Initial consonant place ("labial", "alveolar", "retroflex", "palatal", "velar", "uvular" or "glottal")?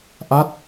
glottal